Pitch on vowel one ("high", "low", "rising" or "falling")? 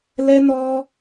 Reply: high